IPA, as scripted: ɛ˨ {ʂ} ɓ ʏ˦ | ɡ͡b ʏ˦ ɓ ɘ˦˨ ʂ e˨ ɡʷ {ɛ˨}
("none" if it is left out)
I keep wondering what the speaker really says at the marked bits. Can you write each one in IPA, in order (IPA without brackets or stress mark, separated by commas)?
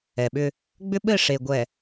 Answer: none, ɛ˨